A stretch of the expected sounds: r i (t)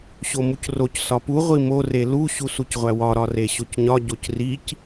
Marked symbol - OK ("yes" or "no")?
no